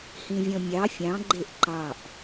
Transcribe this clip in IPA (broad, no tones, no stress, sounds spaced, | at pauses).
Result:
h ĩ vʲ ɔ̃ mʲ ɑ fʲ ɑ̃ ɡ͡ǃ e ʔ ǃ ɑ ʔ